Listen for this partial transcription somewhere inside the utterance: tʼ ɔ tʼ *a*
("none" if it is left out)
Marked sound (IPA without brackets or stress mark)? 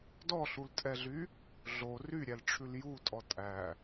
æ